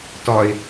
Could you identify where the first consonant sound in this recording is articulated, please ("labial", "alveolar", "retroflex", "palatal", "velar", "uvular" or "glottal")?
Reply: alveolar